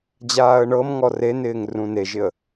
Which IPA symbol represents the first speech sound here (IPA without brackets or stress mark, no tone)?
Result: d͡ʑ